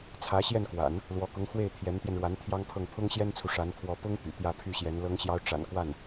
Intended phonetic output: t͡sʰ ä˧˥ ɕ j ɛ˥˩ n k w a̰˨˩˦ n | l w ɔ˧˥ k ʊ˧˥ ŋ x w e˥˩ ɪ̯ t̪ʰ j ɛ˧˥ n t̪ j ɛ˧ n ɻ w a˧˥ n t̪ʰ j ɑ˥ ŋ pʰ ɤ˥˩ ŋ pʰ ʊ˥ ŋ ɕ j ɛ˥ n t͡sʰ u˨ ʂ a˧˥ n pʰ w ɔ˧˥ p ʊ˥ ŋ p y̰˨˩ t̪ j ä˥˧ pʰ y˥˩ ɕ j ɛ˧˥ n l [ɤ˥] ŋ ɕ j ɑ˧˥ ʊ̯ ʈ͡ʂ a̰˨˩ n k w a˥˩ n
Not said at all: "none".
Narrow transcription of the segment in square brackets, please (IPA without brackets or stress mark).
ɤ˧˥